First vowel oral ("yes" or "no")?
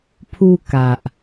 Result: yes